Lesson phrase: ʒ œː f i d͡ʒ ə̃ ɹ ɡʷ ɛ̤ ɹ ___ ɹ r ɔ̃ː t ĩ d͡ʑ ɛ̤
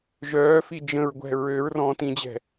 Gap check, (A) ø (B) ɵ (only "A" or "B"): A